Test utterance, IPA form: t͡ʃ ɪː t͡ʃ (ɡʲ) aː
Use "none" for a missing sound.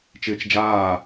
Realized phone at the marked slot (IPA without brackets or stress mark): d͡ʒ